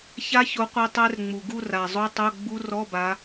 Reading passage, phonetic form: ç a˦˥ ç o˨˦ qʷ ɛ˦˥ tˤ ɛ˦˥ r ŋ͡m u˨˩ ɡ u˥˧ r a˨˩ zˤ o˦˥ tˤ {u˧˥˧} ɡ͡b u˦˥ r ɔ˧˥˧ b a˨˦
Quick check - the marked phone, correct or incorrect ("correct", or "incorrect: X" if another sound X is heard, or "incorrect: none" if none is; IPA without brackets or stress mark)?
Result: incorrect: o˧˥˧